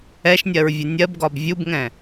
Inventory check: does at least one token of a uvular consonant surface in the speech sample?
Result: no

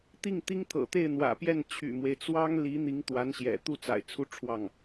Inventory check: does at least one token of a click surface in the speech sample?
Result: no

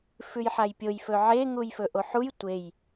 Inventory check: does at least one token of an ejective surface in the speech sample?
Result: no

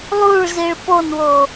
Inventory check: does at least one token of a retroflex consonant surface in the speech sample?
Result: yes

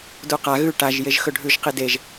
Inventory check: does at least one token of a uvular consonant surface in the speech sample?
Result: yes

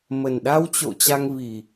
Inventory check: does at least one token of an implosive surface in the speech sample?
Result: yes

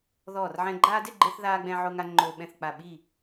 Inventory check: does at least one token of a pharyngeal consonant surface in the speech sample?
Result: yes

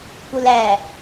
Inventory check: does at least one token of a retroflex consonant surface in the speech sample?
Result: no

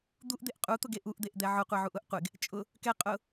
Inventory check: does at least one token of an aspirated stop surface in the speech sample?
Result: no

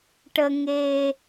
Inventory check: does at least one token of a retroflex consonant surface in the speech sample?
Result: yes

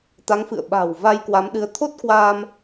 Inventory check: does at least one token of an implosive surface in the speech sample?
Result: yes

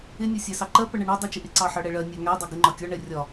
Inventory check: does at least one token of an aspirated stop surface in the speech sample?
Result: no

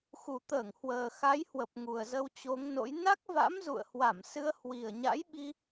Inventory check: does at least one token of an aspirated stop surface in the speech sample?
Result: no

